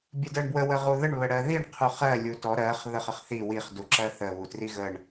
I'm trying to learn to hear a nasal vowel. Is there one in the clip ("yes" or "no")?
no